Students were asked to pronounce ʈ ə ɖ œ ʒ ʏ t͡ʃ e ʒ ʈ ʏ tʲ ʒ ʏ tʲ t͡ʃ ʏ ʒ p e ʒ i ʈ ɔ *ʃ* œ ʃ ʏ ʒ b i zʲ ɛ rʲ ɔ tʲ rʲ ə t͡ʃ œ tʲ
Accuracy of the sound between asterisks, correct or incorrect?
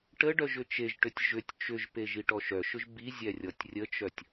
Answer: correct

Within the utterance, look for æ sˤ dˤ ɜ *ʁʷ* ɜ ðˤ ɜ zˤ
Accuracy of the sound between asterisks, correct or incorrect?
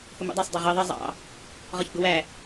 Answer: incorrect: ʁ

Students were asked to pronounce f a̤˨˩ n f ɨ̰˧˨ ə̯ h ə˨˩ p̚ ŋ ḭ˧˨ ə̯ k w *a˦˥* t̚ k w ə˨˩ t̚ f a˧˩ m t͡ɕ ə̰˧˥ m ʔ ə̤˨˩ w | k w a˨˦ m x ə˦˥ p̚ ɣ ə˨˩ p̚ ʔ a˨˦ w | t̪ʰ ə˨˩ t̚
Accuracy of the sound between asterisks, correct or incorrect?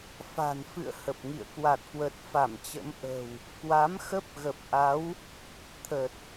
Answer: incorrect: a˨˩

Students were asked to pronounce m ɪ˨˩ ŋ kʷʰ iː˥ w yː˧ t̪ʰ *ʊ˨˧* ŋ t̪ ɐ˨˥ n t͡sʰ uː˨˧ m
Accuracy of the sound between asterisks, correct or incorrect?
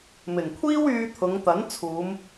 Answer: correct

